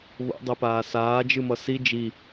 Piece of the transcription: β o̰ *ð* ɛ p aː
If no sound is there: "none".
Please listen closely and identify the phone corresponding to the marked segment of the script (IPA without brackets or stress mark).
dˤ